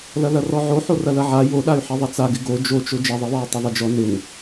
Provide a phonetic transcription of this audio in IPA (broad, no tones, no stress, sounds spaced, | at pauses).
l ɐ l ɐ r ɔ ʕ o ħ o r ɐ l ɐ ʕ a j o ɗ a y̯ ħ i ðˤ ɐ t͡s a ɡ ɪ ɡ o d͡ʒ o t͡ʃ o d͡ʒ ɐ ðˤ i w ɔ u̯ tˤ ɐ ðˤ ɐ d͡ʒ ɔ n ɪ n